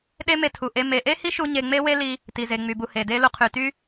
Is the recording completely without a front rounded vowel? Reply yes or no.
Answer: no